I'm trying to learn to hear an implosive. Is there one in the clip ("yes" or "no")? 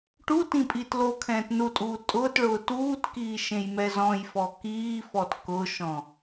no